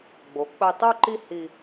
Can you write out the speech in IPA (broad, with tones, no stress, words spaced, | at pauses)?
ɡ͡bo˩˧k͡pə˧j tˤu˥˧ǃi˥˧hi˧